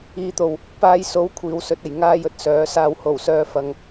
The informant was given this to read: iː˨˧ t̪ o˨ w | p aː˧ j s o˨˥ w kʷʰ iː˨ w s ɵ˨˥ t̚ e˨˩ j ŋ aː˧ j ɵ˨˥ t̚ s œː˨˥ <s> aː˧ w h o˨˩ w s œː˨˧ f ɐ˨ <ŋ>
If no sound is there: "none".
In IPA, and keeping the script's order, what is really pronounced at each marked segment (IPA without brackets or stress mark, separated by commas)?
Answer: s, ŋ